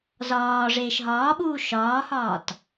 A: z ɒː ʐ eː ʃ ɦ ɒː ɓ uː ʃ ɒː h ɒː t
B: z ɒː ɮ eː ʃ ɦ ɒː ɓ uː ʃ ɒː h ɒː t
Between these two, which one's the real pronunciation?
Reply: A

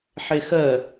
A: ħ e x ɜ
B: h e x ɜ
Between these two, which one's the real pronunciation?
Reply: A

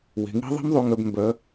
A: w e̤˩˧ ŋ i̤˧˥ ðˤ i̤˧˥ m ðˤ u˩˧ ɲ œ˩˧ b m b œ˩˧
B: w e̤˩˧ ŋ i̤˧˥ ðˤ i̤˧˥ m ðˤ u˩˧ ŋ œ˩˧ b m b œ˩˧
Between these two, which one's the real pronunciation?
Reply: B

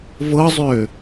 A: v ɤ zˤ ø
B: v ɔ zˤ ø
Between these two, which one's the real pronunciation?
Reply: A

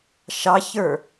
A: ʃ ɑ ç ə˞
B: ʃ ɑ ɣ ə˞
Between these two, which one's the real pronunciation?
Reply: A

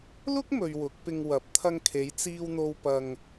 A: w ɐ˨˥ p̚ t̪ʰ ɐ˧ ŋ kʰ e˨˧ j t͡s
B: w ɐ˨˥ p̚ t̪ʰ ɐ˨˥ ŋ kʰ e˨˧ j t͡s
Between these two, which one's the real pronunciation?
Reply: A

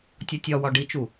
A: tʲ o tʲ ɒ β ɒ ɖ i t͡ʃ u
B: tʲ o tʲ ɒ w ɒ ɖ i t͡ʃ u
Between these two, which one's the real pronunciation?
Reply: B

